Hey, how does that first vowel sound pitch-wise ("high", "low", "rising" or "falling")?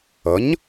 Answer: rising